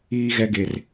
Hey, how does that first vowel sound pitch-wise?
high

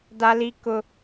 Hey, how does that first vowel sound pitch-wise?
high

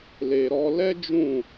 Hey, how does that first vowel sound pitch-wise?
low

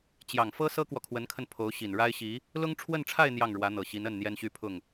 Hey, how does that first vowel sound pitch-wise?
low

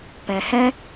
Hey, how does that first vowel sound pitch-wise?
low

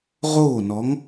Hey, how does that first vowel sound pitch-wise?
falling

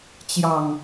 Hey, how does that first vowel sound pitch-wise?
low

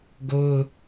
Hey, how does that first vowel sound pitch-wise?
high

